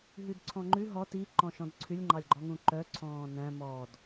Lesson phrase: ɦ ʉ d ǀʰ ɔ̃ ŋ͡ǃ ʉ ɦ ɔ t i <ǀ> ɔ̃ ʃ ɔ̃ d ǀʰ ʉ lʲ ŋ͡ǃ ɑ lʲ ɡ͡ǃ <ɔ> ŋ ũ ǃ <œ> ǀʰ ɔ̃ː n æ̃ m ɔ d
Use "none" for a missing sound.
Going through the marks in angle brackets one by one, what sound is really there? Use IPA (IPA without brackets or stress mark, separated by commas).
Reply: ǃ, ɔ, œ